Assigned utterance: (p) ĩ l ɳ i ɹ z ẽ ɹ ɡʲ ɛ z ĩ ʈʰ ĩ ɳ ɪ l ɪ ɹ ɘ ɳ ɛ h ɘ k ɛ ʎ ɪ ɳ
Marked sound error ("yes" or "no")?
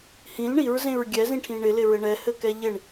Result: yes